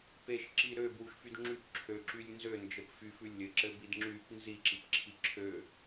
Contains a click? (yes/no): yes